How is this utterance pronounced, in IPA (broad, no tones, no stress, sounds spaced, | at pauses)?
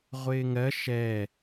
ʁʷ ɪː ŋ ɜ ʃ ɛ